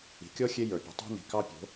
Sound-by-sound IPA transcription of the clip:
i̤˨ kʲ ɔ˦ xʲ e˦ j ə˞˨ pʲ o̤˨ tˤ o̤˦ n i̤˨ k ɑ˦ pʲ o̤˨˦

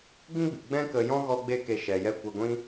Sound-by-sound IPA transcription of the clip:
ɡ ĩ˦ ɡ͡b ɨ˨ ɡ͡b ɛ̃˦ k ə˧ j ɔ̃˦ ɣ ɔ˦ ɡ͡b e˦ k e˧ ʃ ɛ˨ j ɛ˦˨ kʷ ɛ˧ ɡʷ ĩ˦

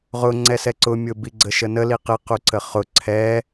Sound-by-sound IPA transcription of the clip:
ʁ ʊ ŋ͡ǀ ɛ s ɛ ǀ ʊ mʲ ʊ b i ɡ͡ǀ ə ʃ ə n ə l i q ɪ q u ǀ ə χ ʊ ǀʰ ɛ

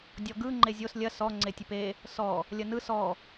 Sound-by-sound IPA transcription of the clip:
dʲ ɔ ɡ ɯ ŋ͡ǃ e zʲ o s lʲ ɐ s ɔ ŋ͡ǀ e tʲ ɨ p e | s ɔ | lʲ ɐ n ɯ s ɔ

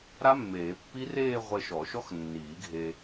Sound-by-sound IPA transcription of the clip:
ɾ a˦˥ mː eː˨˩˦ pː i˦˥ r eː˥˧ ʁʷ e˧ ʃ ɔ˨˩˦ ʃ ɔ˦˥ x nː iː˨˩˦ ɡʱ e˧

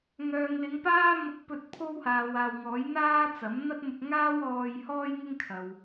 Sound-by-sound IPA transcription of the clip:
ŋ œː˨ ŋ l ɪ˨˧ ŋ p aː˥ m ʊ˧ k̚ p ɵ˧ t̚ pʰ o˥ w h aː˨ w aː˨ w ŋ ɔː˨˥ j n̪ aː˥ t͡s ɐ˨˥ m n̪ ɐ˥ t̚ m ʊ˧ k̚ ŋ aː˥ w ɔː˧ j h ɔː˥ j ŋ ɪ˥ ŋ kʰ ɐ˨ w

